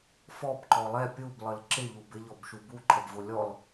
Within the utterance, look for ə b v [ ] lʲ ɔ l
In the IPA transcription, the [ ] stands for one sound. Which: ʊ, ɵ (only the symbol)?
ʊ